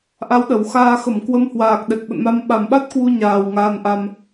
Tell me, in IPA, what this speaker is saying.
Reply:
ʔ a˨˦ w ɗ ə˨˩ w x aː˧ x ə˧˩ m k w ə˨˦ m h w aː˨˩ k̚ ɗ ɛ˨˩ k̚ ɓ ə̰˧˨ n m a˧ m ɓ a˨˩ m ɓ a˦˥ t̚ k w u˧ ɲ aː˨˩ w ŋ aː˧ n ʔ a˧ m

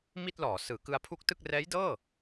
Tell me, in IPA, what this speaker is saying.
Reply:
m i˥˩ t̚ l ɔː˩˦ s ɯː˩˦ k ɯ˧ a̯ pʰ u˦˥ k̚ t ɯ˥˩ k̚ r ɛː˦˥ j d ɤː˥˩

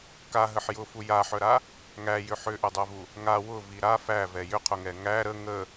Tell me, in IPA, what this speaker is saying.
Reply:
k a ɦ ə ħ j ʊ f u j a ħ œ ɾ a | ŋ æ j ʏ ħ ʏ ʔ ʏ dˤ œ v u | ŋ a w ʊ v i ɾ a f æ v ɛ j ʏ qʰ ʊ ŋ ɛ ŋ æ ɾ ə ŋ ə

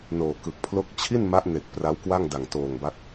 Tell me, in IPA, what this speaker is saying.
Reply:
n oː˨˩ k ɯ˨˩ k̚ pʰ l o˥˩ k̚ t͡ɕʰ i˥˩ n m a˦˥ ʔ n e˨˩ k̚ p r a˦˥ w k w a˥˩ ŋ d a˨˩ ŋ t oː˨˩ ŋ b a˦˥ k̚

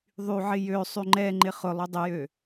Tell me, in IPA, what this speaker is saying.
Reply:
ðˤ y ʕ ɪ j ø sˤ y ŋ͡ǃ ɛ ŋ͡ǃ ɪ χ ʊ lˠ o dˤ ə j ø

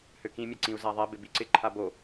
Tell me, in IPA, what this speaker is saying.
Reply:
h ø k ĩ mʲ ɛ ǀ ĩ u̯ z a ðˤ ɛ b ɪ b i ǀ ɪ ǃʰ a b o

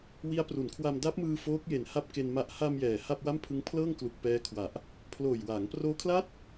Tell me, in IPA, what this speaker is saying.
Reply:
w i˦˥ a̯ p r u˩˦ n kʰ w a˧ m d a˦˥ p̚ m ɯː˧ f oː˦˥ k̚ j e˨˩ n h a˥˩ p̚ k e˧ n m a˨˩ ʔ h a˧ m j ɛː˨˩ h a˥˩ p̚ w a˥˩ m pʰ ɯ˦˥ ŋ pʰ l ɤː˥˩ ŋ k l u˨˩ k̚ p ɛː˦˥ kʰ w a˨˩ ʔ | pʰ l oː˨˩ j w aː˩˦ ŋ p r oː˦˥ kʰ l a˥˩ t̚

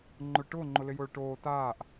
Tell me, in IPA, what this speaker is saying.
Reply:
ŋ͡ǃ ʊ ɭ ʈ ʊː ŋ͡ǃ ʊ l ɪ j ʊː ɭ ʈ oː t aː ʔ

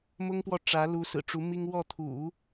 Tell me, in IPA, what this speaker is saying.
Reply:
m ʊ˥ ŋ p w ɔ˥˩ ʈ͡ʂ ä˧˥ l u˧˥ s ɹ̩˨˩ ʈ͡ʂ u˧˥ m i˥ ŋ w ɔ˥˩ t̪ʰ ṵ˨˩˦

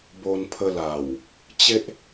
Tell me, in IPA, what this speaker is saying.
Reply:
b o˧ n pʰ ə˧ l a˨˩ w | t͡ɕ e˦ ʔ

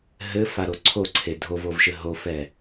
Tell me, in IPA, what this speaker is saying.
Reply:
ɦ ɘ f a ɾ o ǀʰ o ǀʰ e dʱ o v o v ʃ ɘ ɦ o f ɛ

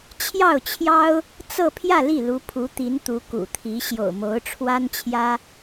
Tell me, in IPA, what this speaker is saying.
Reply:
t͡ɕʰ j ɑ˥˩ ʊ̯ t͡ɕʰ j ɑ˥ ʊ̯ | t͡s ɤ˥˧ pʰ j ä˥˧ l i˥˩ l u˧˥ pʰ u˧˥ t̪ i˧˥ n t̪ u˧˥ k ṵ˨˩ t̪ʰ i˧˥ ɕ j o̰˨˩ ʊ̯ m o˧˥ ʊ̯ ʈ͡ʂʰ w a˥ n t͡ɕʰ j ä˥

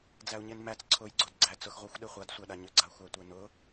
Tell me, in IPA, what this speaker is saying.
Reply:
d͡z æ u̯ ɲ e n m æ t͡s ǀʰ ʊ j ɡ͡ǀ o d ɡ͡ǀ æ t͡s ʊ x ʁʷ æ xʷ ɗ e χʷ a d sʷ æ ɗ a ɲ ʏ ɡ͡ǀ a xʷ æ tʷ e n ʊ

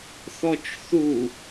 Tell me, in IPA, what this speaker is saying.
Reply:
θ ɔ t͡ʃ θ u

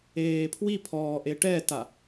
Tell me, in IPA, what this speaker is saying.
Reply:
eː pʰ w i pʰ ɔː ʔ e ʈ ɛ t a

